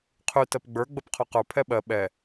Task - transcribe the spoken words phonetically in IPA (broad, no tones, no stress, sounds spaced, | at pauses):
qʰ ʉ t ɜ p ɡ͡b ə˞ ɡ͡b ə p qʰ o q ə˞ pʰ ɛ ɓ ɜ ɓ ɛ